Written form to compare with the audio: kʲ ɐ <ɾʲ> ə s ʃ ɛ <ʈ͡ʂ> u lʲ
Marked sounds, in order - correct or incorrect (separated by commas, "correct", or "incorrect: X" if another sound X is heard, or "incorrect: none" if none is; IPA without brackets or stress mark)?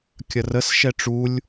incorrect: r, correct